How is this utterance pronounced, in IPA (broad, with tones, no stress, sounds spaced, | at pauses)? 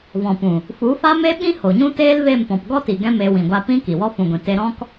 v ɔ̃˨ p ũ˨ | f u˨˦ f a˦ m e˦ ɓ ĩ˦ h o˨ ɲ ũ˦ t eː˦ l v e˦˨ m p ɔ̃˨ p ɡ ɔ˦ t i˨ ɡ ɛ̃˦ m eː˧ w ĩ˨ ɡʷ a˧ p ĩ˦ k i˨ w ɔ˦ f ũ˨ ɡʷ ĩ˨ t e˧ ɾ ɔ̃˦ k